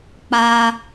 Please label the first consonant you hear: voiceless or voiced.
voiceless